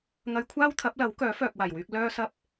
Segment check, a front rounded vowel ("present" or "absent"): present